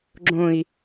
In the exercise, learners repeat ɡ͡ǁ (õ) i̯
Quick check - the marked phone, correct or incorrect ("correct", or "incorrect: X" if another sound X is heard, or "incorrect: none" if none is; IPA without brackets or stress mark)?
correct